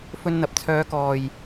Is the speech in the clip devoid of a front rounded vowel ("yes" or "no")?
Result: no